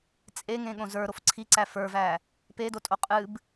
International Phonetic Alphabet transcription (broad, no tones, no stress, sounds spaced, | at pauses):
t͡sʼ e ŋ ẽ ɠ õ z ə˞ ɾ o f ǀʰ i ǀ æ f ə˞ v æ | p e d o tʼ o qʼ ɨ b